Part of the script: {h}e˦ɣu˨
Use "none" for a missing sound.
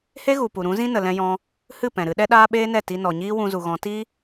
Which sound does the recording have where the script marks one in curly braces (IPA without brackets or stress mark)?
h